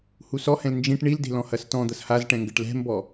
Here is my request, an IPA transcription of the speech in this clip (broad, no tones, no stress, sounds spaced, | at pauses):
h u s ɔ h ɛ̃ l n d͡ʒ ĩ ʈ ɳ i l d e̤ l ɔ̃ h ɐ s t ɔ̃ d̪ ɐ s h a z ʈ ɛ̃ ŋ ɡ ɘ ʈ l ɛ̤ m b ɔ